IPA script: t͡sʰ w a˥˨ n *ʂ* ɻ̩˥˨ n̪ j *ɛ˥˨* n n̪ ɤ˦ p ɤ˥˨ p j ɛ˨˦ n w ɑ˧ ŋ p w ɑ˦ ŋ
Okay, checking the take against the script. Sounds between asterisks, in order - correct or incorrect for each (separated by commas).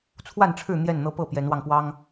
incorrect, correct